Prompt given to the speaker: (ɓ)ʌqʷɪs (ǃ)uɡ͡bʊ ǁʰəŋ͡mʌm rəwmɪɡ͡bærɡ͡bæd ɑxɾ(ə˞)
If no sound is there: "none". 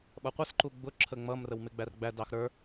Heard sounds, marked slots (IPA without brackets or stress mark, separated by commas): ɓ, ǃ, ə˞